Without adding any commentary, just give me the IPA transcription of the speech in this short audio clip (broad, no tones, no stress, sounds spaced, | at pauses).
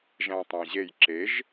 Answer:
ʒ æ̃ tˤ æ̃ ʑ e j ǁ e ʒ